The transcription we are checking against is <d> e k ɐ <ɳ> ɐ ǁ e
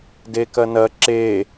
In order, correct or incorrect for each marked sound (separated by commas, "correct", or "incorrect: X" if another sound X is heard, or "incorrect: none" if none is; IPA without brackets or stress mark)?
correct, incorrect: n